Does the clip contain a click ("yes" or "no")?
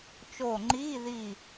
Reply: yes